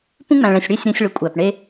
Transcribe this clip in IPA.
p ũ˦ ŋ͡m æ̃˨ ɭ ɛ̃˨ sʲ ɽ e˦˨ sʲ ɾ ã˦ sʲ ɭ ɵ˨ kʷʼ æ˨ p ɳ e˦

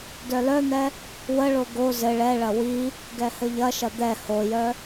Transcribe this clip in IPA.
d œ l œ n̪ ɛ | w ə ɭ o ɡ o z ɘ ɭ ɛ ɭ ɐ w i | ɡ ɛ h ɘ ʎ ɐ ʃ ɐ d̪ ɛ h o j œ

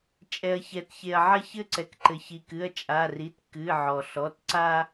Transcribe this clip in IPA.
t͡ʃʼ ɛ˩ ɐ̯ ç ɛ˩ t ç e˩ ɐ̯ ʕ ɐ˦ ç ɘ˦ ǀ ɛ˩ k ǃ ɘ˩ ç i˩ k ɨ˩˧˩ ɐ̯ t͡ʃʼ a˩˧˩ r i˩˧˩ t k ɨ˩˧˩ ʕ ɔ˩ ɬ ɔ˩˧˩ t ǀ a˦

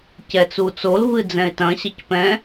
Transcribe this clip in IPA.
c ɛ t͡s u t͡s o l v ɨ d͡z ɛ̃ ɪ̯ t ɐ̃ ɕ ɐ c p ɛ̃

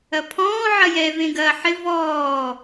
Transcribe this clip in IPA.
ɐ pʰ ɔ̃ː ʕ ɐ j ɛ v ẽ ɡ ɐː ħ ɪ v ɔː

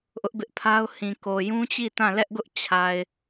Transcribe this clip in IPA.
ʔ ʊ˦ ʔ b ɪ˦ ʔ pʰ a˦ ʊ̯ h ĩ˨ k o˨ j ũ˦ t͡ɕ i˦˨ t ã˦˨ l ɛ˦ ʔ ɡ ʊ˦ ʔ t͡ɕʰ a˨ ɪ̯

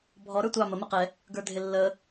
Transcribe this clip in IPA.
bʱ ɔ ɾ ə˞ tʷ ɑ m ə m ɪ q ɛ | ɡ ə˞ dʱ ɪ lː ə

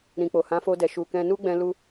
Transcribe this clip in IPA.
ɾ ĩ˨ k͡p o˨ h ã˨˦ f o˧ d ɛ˨ ʃ u˨ k ɛ̃˧ n u˦ ɡ͡b ɛ̃˧ l u˧

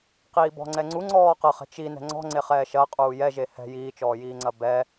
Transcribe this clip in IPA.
q iː b ɔ̤ ŋ͡ǀ ɛ ŋ͡ǀ u ŋ͡ǀ ɔː q ɐ χ ɛ̤ t͡ʃ i n ɛ̤ ŋ͡ǀ ɔ̤ ŋ͡ǀ e χ ɛː ʃ ɐ qʼ uː j ɛ ʒ e h ɛ̤ j iː t͡ʃ ɔː j iː ŋ͡ǀ ɐ b ɛ

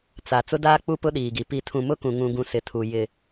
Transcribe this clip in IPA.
t͡s a˨ t͡s ʊ˦ d aː˦ k͡p u˦ p ʊ˦ ɗ iː˨ ɡ i˨ p i˦ tʰ ũ˦ m ʊ˦ k ũ˨ ŋ ũ˨ ɡ ũ˨ s ɪ˨ tʰ u˨ j ɪ˨

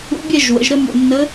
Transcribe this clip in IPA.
ṵ˧˥ bʲ ɛ˥˧ ʒ w ə̰˩˧ ʒ ɾ ə˥˧ m ṵ˧˩ nː ə˧˥

